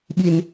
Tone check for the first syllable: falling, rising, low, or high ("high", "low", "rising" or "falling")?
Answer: low